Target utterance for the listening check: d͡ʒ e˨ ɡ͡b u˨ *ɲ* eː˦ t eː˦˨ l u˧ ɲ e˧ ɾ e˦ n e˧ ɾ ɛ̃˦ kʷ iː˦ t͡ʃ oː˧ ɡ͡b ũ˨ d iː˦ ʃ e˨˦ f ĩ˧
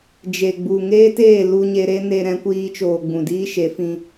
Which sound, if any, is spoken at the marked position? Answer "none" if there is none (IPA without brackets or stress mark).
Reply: ŋ